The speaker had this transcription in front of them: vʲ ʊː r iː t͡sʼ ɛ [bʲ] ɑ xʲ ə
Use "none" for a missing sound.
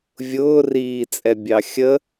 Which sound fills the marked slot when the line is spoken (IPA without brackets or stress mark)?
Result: bʲ